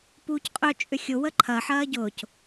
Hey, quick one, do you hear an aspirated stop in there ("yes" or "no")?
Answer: yes